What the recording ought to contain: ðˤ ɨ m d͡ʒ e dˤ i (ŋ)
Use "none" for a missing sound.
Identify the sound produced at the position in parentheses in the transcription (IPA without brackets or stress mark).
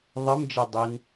n